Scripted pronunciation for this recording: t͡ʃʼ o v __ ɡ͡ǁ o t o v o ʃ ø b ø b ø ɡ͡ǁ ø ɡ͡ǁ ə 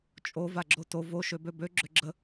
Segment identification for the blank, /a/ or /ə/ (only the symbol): a